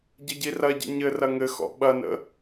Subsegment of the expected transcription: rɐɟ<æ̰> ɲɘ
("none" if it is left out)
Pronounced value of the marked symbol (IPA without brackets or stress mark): ə̰